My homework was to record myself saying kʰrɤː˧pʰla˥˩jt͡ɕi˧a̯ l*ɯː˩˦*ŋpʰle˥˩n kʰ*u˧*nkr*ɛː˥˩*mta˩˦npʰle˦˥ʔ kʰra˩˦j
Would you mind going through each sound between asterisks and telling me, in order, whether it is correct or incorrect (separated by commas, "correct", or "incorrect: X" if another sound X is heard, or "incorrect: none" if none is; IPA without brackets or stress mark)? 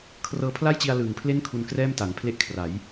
incorrect: ɯː˨˩, correct, correct